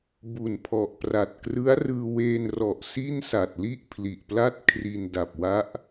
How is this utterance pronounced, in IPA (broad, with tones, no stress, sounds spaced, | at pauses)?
b u˨˩ n pʰ ɔ˨˩ ʔ p r a˨˩ t̚ k r ɯ˦˥ a̯ r ɯː˧ w eː˧ n r ɔ˨˩ ʔ s i˥˩ n s a˨˩ t̚ l i˥˩ ʔ pʰ l i˨˩ ʔ p l a˦˥ t̚ kʰ r i˧ n d a˨˩ p̚ w a˦˥ ʔ